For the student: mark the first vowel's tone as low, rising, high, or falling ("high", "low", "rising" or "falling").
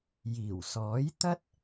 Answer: low